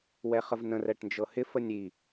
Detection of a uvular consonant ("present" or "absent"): present